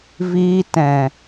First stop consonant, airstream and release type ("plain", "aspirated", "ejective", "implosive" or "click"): plain